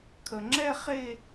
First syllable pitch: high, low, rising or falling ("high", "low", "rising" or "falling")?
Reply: low